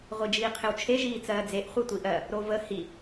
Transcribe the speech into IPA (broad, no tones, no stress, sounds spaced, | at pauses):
ʁʷ i d͡ʒ iː qʰ ɪ w t͡ʃʰ e ʒ iː t͡s ɜː d͡z e ʔ χʷ i tʷ i ʔ ɜ | ɾ o v ə h i